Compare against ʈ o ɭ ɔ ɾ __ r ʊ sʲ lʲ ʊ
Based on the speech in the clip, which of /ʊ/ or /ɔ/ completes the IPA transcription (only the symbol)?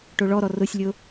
ɔ